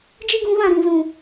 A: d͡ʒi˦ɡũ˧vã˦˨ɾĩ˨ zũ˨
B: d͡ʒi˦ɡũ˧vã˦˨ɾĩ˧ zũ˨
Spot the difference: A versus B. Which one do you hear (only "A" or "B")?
A